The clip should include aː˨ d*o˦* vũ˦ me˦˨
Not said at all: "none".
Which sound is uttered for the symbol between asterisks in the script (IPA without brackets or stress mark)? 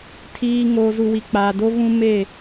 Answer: o˦